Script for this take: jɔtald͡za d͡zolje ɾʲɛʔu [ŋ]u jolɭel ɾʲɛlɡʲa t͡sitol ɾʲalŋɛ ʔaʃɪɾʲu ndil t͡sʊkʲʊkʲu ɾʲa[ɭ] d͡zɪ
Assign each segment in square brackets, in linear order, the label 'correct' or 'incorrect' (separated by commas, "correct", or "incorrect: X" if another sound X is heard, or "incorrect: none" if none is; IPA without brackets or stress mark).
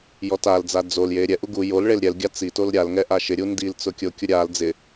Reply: incorrect: ɡ, incorrect: l